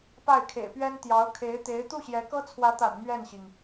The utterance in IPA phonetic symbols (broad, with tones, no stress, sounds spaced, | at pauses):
p a˥˩ ɪ̯ kʰ ḛ˨˩ ɪ̯ p ɥ ɛ˥ n t̪ j ɑ˧˥ ʊ̯ kʰ e˧˥ ɪ̯ t̪ e˧˥ ɪ̯ t̪ u˥˩ ɕ j ɛ˧˥ k ɤ˥ t͡sʰ w ä˧˥ t̪ a̰˨˩ n m ɥ ɛ˥˩ n ɕ i˩ ŋ